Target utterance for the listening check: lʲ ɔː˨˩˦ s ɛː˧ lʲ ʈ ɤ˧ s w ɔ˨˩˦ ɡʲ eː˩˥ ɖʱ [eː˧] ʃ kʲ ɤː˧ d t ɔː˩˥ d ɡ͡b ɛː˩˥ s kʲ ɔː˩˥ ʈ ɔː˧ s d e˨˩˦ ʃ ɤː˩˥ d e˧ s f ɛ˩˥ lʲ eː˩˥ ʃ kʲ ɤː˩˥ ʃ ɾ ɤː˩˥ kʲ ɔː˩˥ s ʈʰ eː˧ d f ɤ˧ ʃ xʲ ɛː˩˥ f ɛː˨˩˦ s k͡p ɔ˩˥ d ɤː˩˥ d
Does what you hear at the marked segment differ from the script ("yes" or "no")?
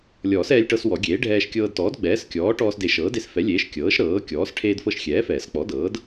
yes